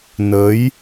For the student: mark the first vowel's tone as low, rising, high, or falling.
rising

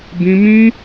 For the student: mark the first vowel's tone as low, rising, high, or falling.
high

